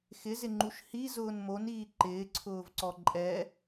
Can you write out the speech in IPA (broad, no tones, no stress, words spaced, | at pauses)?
xɪzɪŋ͡ǃuʃ hizʊːn moniː ǃɪːǀʰʊːvǀɔ ǃʼɛ